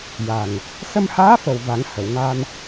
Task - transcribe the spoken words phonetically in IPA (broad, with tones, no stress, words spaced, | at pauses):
ja˨˩ŋ | sə˧mhaː˧˥fə˨˩w va˨˩˦ŋhə˨˩˨wŋa˧n